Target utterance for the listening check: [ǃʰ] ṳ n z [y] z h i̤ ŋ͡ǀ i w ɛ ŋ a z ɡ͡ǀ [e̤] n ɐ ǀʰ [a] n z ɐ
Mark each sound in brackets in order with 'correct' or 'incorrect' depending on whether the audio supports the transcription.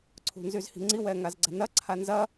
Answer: incorrect: ǀʰ, correct, incorrect: ɛ̤, correct

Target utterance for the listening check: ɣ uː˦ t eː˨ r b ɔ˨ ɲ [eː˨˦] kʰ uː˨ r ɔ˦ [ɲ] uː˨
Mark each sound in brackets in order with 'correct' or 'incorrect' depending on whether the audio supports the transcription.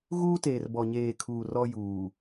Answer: incorrect: eː˨, incorrect: j

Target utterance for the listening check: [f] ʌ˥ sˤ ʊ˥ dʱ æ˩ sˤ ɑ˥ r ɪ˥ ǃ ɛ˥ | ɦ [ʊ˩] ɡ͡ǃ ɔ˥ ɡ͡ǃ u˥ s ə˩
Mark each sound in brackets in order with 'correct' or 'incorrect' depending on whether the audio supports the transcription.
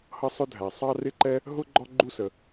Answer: incorrect: h, incorrect: ʊ˥

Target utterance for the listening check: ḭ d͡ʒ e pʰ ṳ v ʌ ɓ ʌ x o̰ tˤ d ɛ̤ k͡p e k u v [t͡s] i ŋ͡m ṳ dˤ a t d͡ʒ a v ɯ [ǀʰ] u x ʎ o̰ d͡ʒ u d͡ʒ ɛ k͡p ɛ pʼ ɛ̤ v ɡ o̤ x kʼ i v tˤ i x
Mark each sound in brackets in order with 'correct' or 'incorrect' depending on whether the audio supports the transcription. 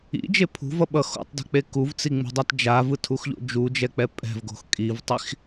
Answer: correct, incorrect: tʰ

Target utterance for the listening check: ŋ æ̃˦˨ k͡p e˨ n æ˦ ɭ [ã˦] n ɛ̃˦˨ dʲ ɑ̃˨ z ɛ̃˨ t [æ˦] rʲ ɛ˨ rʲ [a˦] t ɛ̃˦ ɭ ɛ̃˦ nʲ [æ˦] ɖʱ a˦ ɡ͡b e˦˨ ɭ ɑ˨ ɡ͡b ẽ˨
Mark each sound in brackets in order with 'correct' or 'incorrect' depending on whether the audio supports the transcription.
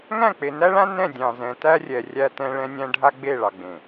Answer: correct, correct, incorrect: æ˦, incorrect: æ̃˦

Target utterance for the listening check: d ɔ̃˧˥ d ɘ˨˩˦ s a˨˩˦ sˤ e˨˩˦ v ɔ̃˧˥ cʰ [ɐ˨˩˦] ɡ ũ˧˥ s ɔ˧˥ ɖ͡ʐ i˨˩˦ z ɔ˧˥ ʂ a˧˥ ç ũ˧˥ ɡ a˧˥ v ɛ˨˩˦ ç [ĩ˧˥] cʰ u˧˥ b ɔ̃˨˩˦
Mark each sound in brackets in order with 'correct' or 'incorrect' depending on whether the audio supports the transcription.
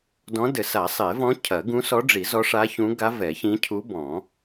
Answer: correct, correct

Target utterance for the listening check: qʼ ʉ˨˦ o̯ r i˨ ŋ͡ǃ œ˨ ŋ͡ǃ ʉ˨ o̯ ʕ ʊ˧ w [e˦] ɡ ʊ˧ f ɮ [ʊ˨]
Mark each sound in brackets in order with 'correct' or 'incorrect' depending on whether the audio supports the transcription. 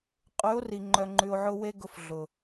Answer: correct, correct

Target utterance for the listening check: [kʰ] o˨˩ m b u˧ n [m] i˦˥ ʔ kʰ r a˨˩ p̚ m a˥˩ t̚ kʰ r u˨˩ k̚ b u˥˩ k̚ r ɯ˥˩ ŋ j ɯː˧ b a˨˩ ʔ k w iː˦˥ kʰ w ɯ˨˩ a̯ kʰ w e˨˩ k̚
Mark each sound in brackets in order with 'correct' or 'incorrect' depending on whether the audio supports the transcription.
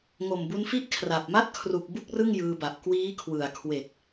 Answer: incorrect: ŋ, incorrect: f

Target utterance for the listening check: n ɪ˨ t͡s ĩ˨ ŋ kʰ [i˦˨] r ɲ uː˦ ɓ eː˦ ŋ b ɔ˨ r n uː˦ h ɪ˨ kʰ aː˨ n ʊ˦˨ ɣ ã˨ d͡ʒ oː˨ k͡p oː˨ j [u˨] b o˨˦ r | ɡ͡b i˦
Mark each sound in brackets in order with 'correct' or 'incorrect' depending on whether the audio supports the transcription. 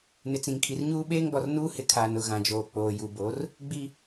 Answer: incorrect: i˨, correct

